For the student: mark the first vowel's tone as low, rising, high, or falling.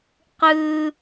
high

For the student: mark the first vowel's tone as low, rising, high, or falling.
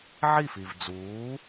falling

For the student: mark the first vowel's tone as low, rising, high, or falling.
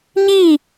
falling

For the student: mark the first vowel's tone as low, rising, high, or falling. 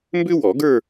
high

